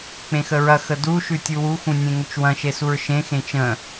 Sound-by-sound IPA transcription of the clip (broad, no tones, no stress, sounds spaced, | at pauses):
k͡p ẽ x ə ɹ ɐ x ə d u ʃ ʉ tʲ u w u x ũ nʲ ẽ ŋ ʏ t͡ʃ w ɐ̃ ʃ e s u ɹ ʃ ẽ x ẽ t͡ʃ ə̃